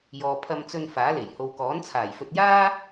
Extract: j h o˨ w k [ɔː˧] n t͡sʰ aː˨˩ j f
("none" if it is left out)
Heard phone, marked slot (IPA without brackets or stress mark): ɔː˨˥